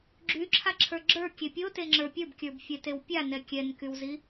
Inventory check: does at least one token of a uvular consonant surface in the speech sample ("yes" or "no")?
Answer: no